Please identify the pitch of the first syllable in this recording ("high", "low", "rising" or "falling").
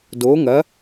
rising